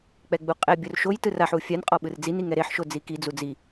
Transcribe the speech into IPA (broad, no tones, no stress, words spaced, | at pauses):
k͡pɛɡ͡buqʼɛ bʲorʃojtɯ raħu fʲan qʼɔɓɯrd͡zin iŋɛɾeħ ʃod͡ziki d͡zud͡zi